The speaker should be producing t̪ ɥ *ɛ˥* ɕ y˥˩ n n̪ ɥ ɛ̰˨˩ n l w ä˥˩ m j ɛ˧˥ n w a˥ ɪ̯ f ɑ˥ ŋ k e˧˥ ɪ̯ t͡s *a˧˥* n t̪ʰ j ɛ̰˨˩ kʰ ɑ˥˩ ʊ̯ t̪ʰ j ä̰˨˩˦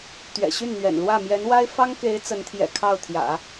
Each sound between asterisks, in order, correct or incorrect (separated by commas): incorrect, incorrect